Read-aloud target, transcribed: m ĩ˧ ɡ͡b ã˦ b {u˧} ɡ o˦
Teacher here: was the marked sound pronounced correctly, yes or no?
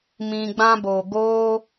no